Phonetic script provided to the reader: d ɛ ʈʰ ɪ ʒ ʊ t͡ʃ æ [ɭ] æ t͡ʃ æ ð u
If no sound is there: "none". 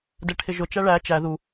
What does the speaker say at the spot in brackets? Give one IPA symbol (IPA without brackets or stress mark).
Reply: ɭ